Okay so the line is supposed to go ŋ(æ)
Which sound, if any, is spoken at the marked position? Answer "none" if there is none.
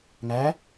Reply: æ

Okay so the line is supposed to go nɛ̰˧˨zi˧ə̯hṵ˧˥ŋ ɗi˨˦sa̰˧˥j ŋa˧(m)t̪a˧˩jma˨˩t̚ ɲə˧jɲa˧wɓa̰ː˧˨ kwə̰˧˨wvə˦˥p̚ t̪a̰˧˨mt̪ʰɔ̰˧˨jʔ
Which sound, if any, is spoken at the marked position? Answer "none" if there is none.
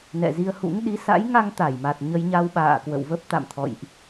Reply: ŋ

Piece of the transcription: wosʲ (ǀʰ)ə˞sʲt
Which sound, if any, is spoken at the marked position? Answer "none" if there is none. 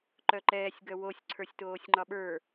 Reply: ǀʰ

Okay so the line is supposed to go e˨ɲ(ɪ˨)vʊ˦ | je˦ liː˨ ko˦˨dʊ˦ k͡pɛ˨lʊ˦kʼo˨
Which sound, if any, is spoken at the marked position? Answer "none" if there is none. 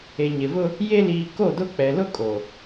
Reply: ɪ˨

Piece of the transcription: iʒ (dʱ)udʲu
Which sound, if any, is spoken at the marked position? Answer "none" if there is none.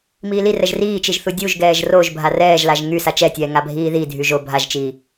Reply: θ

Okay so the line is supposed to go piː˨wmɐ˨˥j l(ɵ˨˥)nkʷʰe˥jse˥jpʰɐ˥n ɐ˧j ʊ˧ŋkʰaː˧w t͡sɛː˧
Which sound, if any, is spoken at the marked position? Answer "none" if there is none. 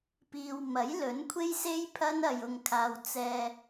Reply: ɵ˨˥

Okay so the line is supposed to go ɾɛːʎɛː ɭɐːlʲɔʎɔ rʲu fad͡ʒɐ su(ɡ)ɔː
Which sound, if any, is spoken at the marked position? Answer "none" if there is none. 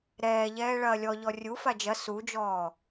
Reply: d͡ʒ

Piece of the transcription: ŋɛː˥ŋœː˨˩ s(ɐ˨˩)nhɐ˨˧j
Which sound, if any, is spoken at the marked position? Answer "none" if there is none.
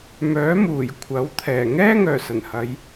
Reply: ɐ˨˩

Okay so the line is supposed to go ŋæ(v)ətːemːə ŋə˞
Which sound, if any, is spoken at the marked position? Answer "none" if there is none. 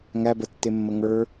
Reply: b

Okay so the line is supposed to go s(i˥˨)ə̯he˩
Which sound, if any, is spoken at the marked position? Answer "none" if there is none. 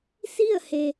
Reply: i˥˨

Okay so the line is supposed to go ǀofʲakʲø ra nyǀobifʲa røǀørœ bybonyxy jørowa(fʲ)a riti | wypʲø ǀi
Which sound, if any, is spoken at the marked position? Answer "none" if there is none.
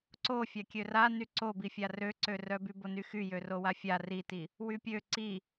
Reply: fʲ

